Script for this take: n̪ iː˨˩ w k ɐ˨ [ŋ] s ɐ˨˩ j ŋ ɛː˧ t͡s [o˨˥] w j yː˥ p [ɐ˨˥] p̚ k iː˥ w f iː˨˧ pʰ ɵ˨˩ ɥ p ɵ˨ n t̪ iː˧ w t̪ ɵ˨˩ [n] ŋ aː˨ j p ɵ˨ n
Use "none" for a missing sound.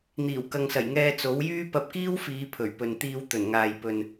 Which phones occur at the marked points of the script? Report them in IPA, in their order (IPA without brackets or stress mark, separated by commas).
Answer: ŋ, o˨˥, ɐ˧, n